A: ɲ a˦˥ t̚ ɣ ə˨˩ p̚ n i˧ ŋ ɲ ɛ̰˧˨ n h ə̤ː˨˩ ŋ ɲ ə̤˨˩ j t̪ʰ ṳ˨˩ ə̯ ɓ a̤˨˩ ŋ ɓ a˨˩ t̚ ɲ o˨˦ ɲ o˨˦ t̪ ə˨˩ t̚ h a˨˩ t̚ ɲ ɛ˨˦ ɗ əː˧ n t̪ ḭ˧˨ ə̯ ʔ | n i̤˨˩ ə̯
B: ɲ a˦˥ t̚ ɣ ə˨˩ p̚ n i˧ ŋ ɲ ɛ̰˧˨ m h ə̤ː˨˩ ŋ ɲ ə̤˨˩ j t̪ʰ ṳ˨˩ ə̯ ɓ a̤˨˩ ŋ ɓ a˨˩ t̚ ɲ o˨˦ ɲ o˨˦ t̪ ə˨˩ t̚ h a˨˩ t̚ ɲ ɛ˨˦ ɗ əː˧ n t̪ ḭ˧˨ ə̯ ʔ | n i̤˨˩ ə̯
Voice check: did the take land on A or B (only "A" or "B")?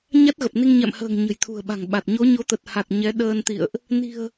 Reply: B